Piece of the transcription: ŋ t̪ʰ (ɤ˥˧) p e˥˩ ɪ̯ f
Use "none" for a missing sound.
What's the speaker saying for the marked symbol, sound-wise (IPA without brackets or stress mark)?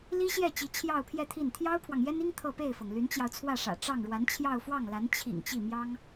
ɤ˥˧